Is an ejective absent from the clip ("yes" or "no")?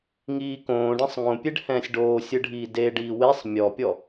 yes